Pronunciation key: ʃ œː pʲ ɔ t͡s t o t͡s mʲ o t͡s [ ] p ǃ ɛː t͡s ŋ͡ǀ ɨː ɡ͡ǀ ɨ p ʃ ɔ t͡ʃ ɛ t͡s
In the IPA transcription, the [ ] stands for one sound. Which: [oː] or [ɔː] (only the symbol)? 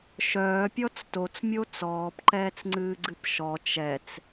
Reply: ɔː